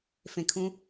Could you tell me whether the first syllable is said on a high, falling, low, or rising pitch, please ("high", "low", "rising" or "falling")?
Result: low